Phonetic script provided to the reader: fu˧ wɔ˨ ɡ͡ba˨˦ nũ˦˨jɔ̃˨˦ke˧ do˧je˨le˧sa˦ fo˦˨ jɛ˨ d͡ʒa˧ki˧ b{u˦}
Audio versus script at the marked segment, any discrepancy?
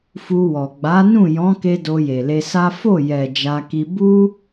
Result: no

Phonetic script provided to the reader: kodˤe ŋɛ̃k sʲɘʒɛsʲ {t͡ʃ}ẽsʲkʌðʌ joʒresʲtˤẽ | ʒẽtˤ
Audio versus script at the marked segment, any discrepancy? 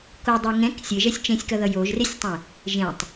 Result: no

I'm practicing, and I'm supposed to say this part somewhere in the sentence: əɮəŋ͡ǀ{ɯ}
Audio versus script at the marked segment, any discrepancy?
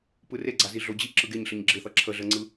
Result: no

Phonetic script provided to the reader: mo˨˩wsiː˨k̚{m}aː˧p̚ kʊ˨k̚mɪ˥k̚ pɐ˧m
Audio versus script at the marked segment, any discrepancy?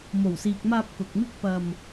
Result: no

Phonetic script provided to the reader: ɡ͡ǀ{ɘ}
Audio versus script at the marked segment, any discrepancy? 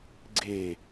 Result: yes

